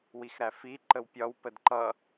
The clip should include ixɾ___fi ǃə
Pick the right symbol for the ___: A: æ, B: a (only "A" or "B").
A